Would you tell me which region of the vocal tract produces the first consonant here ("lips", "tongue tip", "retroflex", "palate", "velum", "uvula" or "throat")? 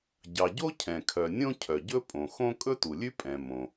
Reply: palate